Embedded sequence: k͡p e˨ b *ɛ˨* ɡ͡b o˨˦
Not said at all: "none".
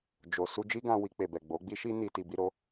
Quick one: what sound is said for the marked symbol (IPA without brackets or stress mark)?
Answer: ɛ˨